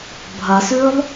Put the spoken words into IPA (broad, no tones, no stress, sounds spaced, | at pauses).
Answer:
bʱ ɐ s ʉː lˠ